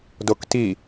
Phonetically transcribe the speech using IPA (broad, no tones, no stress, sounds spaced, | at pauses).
d o k t i